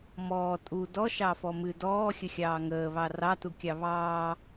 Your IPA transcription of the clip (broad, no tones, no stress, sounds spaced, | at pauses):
m ɔː tʼ u d ɔ ʃ ɑ f ɔ m ɨ d ɔː xʲ ə xʲ ɑː ŋ əː β ɑ r ɑ t u kʲ ɑ β ɑː